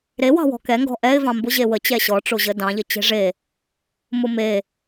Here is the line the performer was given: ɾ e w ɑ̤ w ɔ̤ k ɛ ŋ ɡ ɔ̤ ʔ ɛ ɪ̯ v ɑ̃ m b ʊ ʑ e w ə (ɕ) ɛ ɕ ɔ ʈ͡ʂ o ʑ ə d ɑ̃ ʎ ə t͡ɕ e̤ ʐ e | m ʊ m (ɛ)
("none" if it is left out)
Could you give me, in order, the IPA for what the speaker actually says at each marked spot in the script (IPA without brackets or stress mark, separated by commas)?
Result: t͡ɕ, e